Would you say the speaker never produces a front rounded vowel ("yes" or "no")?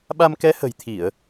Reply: yes